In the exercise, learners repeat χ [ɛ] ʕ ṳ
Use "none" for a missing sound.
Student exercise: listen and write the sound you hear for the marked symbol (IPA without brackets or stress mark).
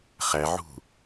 æ